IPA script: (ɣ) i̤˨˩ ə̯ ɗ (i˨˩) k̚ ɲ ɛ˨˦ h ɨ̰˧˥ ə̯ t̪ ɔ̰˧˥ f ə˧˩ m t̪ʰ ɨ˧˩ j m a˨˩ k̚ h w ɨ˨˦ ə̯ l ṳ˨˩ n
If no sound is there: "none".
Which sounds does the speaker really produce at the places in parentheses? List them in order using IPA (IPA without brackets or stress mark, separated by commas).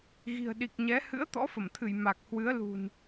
ɣ, i˨˩